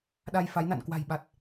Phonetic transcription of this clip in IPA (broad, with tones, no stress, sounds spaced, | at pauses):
ɗ a˧ j f a˨˦ j n a̰˧˨ n k w a̤˨˩ j ɓ a˨˩ t̚